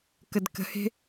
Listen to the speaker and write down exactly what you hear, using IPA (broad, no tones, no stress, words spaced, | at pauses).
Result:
kədkə̤he̤